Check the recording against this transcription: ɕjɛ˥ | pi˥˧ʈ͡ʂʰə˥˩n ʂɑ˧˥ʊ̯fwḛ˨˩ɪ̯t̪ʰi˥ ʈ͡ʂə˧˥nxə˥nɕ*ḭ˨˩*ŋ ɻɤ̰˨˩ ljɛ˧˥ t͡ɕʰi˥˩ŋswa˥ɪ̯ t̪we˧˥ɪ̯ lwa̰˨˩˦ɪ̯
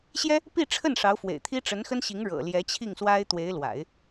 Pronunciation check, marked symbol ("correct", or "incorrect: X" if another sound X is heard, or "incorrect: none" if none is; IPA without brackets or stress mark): incorrect: i˧˥